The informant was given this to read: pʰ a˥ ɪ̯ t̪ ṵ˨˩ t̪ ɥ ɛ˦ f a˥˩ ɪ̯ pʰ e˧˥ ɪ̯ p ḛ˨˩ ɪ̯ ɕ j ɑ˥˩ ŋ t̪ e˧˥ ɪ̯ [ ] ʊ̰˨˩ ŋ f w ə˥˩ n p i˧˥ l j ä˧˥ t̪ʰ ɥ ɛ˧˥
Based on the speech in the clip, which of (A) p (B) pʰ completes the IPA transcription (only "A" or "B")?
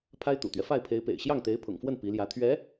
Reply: B